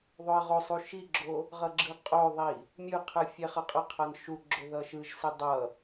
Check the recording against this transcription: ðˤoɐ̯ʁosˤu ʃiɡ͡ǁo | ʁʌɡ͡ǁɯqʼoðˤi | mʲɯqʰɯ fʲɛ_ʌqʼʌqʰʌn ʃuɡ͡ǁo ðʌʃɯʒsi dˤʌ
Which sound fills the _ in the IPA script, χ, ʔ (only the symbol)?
χ